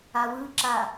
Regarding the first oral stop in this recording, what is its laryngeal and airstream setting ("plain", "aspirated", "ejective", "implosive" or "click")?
click